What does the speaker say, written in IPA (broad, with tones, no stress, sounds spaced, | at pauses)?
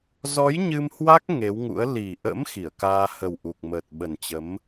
z ɔ˨˦ j ɲ ɨ˧ m h w a˦˥ k̚ ŋ e˨˦ w ŋ ṵ˧˥ ə̯ l i˨˩ ʔ ə̰˧˥ m x i˧˩ ə̯ k aː˧ h ə˨˩ w ʔ u˨˩ k̚ m əː˨˩ t̚ ɓ ə˨˩ n t͡ɕ ə˨˦ m